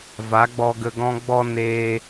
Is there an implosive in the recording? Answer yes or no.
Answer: no